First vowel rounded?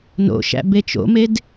yes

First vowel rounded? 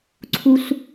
yes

